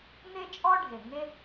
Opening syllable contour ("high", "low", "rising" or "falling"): high